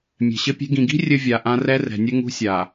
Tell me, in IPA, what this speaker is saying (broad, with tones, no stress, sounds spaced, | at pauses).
mʲ ɛ̤˨ ɕ ɘ˦ pʲ e̤˦ ɡ ĩ˨ ɡ i̤˦ rʲ ɘ˦ vʲ a˨ ʔ ã˦ r ɛ˦ r ɛ̤˨ nʲ ɘ˦ ŋ ṳ˦ sʲ a˨